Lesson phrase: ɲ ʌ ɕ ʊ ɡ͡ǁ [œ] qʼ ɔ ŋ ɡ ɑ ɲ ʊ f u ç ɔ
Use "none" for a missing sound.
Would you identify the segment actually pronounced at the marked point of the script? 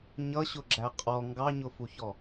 æ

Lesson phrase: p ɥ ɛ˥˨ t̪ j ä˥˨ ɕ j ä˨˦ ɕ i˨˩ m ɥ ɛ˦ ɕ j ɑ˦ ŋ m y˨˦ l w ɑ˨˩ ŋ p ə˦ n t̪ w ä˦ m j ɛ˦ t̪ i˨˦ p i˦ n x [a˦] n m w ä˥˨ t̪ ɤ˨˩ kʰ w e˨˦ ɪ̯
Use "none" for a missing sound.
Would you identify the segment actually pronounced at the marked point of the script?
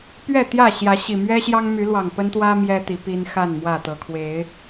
a˥˨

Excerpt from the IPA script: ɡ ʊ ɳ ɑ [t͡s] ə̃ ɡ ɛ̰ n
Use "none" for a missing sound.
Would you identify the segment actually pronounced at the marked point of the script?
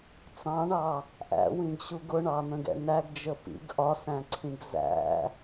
n̪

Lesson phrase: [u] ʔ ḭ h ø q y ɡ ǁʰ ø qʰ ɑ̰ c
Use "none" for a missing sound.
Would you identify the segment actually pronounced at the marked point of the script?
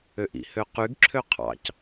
ø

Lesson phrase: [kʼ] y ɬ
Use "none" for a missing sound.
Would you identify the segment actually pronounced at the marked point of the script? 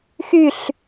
x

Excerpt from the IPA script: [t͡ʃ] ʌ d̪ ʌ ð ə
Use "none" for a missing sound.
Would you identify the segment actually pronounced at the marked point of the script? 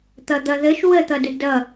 t̪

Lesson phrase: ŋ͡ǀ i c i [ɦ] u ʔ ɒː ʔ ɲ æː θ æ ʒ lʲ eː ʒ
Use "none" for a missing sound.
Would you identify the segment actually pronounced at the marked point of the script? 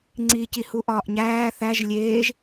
h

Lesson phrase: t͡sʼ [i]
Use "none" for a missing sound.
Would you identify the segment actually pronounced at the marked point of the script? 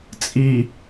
i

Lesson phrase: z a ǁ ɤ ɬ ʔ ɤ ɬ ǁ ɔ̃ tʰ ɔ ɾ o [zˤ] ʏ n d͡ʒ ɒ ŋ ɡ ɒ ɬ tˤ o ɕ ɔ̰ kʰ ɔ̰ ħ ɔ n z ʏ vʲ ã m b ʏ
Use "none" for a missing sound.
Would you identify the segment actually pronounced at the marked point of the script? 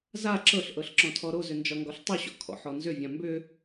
z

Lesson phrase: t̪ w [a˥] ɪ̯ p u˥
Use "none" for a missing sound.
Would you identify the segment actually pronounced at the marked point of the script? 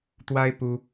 a˥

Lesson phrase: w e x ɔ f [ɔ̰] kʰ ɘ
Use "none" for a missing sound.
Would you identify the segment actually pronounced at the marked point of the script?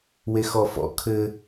ɔ̰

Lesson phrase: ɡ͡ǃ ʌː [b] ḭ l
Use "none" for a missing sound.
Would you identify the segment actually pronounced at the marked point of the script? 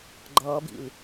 b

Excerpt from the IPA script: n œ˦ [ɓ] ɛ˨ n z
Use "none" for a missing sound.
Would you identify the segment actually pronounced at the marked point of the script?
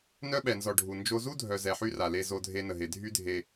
ɓ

